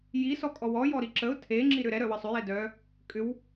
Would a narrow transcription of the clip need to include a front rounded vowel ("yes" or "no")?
yes